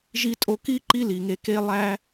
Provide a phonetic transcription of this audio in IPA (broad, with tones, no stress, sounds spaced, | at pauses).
ʒ i˧ tʼ o˧ k i˦ ǃ i˦ l i˨ ŋ e˧ k e˦ lˠ æ˦